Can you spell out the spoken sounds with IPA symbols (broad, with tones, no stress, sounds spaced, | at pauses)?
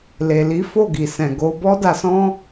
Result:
l e˨ l i˨˦ f o˦˨ ɡ i˨ s ɛ̃˨ ɡ o˨˦ b ɔ˧ d a˨ s ɔ̃˧